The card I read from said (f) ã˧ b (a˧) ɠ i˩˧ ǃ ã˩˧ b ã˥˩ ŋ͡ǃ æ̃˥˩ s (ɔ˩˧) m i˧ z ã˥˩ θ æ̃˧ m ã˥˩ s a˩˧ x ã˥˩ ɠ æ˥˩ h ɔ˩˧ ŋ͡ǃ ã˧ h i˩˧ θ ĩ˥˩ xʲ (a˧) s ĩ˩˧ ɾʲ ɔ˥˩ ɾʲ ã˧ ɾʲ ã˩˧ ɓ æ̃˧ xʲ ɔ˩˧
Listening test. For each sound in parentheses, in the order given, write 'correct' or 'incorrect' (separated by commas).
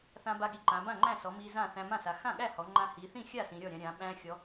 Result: incorrect, correct, correct, incorrect